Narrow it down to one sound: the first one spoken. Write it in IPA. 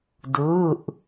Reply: d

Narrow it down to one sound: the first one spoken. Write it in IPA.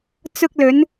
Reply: t͡s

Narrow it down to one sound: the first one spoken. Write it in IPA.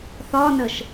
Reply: θ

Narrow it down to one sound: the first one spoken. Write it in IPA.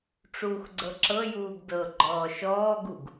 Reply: ʈ͡ʂ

